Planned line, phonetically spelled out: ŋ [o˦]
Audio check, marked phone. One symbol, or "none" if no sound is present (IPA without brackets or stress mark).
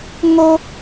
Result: o˦